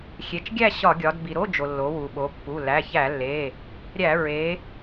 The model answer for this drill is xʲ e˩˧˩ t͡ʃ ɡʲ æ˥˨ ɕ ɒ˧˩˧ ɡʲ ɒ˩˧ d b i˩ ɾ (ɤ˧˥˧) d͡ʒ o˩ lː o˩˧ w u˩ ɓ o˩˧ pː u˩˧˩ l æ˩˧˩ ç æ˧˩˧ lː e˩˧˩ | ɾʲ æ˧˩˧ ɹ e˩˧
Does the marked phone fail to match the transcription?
yes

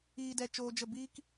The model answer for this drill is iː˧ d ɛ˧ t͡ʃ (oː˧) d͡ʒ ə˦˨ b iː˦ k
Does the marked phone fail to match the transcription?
no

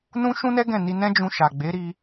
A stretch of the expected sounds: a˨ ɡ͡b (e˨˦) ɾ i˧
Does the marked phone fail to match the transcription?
no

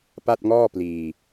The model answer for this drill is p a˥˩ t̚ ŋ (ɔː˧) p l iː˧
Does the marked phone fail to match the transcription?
yes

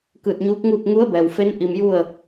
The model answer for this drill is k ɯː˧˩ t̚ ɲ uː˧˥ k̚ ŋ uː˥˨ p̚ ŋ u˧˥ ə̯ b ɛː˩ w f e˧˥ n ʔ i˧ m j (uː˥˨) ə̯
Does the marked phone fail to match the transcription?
yes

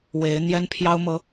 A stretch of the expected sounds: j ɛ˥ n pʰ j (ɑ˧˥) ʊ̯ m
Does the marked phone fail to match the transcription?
yes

